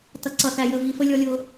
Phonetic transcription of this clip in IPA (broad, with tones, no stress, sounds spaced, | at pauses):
t ʌ˨ ǀ ʌ˨ θ æ˨ j ə˨ v i˨ f ə˦ lʲ ɔ˦ lʲ ʊ˦